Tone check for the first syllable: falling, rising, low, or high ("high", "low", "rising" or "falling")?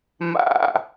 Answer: falling